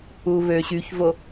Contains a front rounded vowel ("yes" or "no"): yes